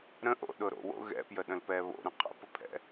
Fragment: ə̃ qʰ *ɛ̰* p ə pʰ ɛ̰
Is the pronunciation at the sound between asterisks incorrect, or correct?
incorrect